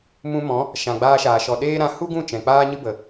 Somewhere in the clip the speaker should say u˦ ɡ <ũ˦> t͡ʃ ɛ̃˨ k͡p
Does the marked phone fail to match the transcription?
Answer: yes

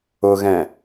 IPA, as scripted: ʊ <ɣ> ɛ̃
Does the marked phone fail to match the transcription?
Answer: no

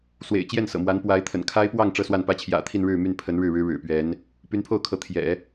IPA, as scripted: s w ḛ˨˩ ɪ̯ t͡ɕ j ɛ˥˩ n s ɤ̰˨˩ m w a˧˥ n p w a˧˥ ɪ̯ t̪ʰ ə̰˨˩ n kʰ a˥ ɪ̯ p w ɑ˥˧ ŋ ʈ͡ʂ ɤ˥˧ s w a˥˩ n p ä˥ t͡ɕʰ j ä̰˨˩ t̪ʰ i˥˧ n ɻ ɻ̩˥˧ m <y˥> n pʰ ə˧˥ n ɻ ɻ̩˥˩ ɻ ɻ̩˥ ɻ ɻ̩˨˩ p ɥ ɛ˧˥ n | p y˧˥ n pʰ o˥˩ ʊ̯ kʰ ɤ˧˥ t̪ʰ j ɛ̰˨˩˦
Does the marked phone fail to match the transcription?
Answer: yes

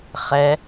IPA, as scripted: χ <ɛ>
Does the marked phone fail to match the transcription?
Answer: no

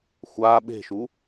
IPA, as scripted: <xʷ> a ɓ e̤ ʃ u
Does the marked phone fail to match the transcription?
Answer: no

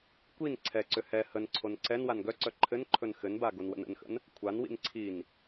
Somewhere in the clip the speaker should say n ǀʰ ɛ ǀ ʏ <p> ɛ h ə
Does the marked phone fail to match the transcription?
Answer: yes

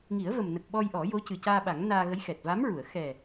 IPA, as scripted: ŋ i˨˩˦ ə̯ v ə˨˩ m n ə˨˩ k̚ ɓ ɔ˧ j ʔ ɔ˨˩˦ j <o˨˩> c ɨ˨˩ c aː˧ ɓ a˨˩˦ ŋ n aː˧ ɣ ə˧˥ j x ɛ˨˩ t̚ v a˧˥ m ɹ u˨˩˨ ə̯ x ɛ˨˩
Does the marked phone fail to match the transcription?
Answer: yes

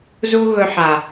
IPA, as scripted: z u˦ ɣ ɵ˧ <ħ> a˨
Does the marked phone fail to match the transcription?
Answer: no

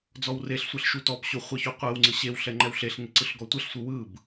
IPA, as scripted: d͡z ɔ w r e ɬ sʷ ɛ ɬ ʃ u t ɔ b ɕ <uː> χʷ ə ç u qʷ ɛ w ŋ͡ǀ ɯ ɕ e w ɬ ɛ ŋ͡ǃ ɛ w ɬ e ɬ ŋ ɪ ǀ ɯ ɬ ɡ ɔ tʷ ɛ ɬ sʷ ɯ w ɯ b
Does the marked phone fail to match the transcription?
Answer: yes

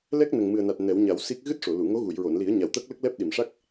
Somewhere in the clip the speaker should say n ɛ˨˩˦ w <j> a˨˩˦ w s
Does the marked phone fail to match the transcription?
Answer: yes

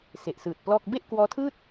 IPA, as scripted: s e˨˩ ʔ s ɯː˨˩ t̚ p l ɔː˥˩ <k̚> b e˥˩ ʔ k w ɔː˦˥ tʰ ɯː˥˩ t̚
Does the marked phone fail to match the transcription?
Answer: no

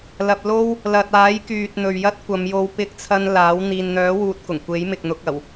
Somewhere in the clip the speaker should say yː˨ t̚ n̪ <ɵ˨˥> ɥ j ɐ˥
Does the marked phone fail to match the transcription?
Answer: yes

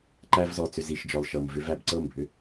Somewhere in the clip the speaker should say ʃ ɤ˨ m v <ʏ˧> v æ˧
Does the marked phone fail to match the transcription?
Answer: no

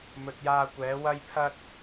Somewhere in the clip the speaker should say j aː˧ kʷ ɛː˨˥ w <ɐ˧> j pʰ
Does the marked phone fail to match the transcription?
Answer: yes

